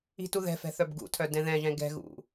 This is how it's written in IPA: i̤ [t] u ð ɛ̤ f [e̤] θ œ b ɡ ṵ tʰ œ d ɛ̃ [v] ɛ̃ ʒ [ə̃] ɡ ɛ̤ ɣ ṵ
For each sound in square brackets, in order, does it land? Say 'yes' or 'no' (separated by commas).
yes, no, no, no